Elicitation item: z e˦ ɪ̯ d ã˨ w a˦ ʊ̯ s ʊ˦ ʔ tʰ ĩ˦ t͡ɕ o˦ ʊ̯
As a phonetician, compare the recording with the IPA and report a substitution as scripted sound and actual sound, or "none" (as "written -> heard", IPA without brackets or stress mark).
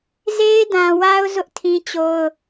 s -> z